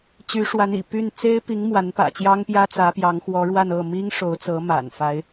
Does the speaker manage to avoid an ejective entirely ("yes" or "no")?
yes